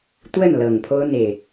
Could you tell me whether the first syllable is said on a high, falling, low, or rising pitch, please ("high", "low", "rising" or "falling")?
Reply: falling